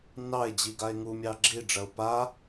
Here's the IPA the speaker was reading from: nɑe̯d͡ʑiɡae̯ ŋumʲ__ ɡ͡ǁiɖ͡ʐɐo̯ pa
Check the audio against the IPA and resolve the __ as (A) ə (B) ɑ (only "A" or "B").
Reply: B